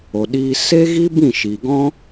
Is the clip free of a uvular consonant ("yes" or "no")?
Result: yes